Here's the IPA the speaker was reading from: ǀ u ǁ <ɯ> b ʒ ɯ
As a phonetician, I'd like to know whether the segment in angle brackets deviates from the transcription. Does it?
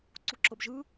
yes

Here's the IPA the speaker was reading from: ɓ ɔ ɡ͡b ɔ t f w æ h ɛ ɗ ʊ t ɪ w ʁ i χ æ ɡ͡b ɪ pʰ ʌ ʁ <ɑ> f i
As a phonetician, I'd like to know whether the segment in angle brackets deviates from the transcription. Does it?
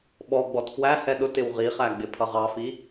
no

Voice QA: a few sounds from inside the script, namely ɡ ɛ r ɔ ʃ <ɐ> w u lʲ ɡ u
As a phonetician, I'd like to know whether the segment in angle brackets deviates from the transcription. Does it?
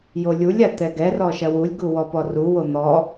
no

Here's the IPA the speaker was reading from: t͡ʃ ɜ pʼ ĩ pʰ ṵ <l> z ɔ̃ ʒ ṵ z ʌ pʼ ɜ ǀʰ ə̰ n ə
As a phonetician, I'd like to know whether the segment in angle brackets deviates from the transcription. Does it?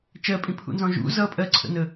yes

